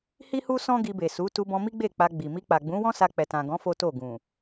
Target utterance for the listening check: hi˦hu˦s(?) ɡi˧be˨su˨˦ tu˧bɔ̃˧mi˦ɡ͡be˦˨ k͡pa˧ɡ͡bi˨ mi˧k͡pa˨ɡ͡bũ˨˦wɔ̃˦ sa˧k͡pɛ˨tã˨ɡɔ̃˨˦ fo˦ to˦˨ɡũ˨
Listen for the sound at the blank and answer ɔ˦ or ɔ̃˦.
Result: ɔ̃˦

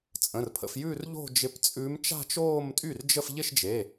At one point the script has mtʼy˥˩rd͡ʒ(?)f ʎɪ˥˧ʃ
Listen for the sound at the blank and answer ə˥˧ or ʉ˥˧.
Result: ə˥˧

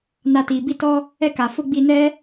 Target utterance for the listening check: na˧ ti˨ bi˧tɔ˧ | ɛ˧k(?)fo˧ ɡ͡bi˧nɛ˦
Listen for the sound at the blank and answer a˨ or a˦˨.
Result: a˨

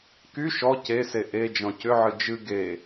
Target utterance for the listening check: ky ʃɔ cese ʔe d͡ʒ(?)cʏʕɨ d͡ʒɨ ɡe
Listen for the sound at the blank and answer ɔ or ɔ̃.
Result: ɔ̃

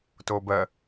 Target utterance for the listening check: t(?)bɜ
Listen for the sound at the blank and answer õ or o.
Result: o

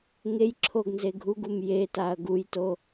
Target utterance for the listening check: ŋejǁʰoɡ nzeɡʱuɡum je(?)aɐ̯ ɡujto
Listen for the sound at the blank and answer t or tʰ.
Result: t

